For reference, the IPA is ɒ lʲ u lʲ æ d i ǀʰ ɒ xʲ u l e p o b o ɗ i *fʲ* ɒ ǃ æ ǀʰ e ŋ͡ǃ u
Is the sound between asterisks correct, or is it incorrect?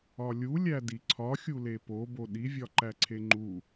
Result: incorrect